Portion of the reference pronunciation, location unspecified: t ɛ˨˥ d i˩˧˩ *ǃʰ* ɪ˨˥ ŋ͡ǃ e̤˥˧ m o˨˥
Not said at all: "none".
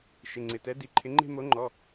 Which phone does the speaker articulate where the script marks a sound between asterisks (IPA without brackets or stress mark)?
ǃʰ